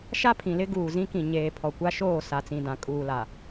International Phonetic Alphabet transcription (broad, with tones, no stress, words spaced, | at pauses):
ʃa˦pʰĩ˨lɪ˦ ɡuː˨zĩ˦kĩ˨ ɲeː˨ pʰɔ˨kʷa˦ʃoː˦˨ sa˨t͡sĩ˨dã˨ kʼuː˨la˨